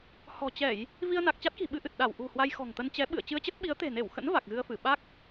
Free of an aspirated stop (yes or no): yes